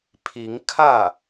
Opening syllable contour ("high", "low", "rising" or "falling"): rising